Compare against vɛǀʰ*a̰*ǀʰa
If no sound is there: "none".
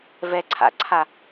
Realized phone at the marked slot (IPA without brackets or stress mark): a̰